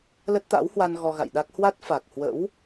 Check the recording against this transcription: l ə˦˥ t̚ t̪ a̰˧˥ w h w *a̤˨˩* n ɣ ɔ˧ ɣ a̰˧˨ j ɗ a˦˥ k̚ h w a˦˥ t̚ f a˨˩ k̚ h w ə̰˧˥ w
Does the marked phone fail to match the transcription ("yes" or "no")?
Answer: yes